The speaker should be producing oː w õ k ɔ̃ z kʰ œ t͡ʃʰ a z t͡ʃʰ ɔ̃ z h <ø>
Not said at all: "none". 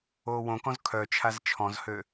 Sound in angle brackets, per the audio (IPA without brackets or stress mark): ø